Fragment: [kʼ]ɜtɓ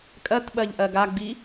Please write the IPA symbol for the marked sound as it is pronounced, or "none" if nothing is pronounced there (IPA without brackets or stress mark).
kʼ